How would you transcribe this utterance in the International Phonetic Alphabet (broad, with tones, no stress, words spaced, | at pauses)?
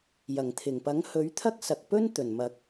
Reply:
jɐ˨˩ŋt̪ʰɪ˨˩ŋpɐ˨˥ŋ hɵ˨˥ɥt̪ʰɐ˥k̚sɐ˨k̚pɵ˥n t̪ɵ˨˩nmɐ˨˥k̚